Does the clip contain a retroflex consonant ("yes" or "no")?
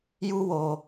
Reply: no